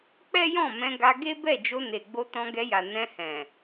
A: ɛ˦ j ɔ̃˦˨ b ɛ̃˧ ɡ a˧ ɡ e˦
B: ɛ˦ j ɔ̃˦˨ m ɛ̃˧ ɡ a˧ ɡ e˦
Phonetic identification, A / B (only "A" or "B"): B